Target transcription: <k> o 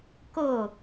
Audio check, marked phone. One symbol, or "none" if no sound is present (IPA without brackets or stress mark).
k